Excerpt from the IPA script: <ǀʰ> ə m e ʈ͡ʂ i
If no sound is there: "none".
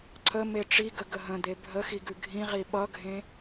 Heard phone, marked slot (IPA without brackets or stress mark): ǀʰ